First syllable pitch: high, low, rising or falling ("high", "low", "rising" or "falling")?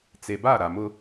low